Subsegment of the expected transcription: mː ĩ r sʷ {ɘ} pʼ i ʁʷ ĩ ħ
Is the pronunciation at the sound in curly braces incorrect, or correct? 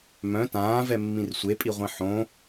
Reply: incorrect: e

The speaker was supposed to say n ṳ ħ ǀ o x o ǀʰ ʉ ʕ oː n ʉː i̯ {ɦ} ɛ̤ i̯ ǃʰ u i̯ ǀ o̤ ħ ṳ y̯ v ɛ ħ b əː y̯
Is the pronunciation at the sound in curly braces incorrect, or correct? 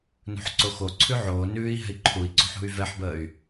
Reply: correct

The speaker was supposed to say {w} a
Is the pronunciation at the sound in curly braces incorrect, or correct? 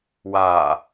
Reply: correct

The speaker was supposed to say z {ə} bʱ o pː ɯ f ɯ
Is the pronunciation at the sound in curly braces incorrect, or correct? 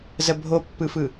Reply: correct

